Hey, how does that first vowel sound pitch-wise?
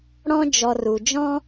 high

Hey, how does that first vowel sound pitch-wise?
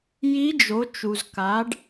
rising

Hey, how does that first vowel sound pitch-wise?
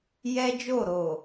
high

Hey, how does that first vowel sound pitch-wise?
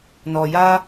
low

